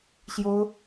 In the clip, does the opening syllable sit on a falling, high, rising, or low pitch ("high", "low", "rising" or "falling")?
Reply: high